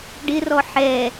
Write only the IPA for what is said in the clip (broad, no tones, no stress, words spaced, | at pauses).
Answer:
ɖɪrɔ ħɛ